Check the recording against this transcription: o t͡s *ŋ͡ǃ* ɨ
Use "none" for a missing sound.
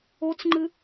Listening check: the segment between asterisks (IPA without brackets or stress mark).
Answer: ŋ͡ǃ